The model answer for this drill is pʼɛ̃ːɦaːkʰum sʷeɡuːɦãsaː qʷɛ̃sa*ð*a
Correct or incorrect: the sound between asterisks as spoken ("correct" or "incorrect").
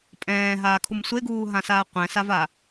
incorrect